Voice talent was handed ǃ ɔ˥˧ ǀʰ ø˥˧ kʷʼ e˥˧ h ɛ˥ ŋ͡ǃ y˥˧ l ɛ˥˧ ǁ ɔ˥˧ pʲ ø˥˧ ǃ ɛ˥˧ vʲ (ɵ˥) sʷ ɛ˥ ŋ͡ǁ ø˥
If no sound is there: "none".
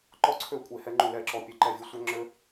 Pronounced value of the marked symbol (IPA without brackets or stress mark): ɵ˥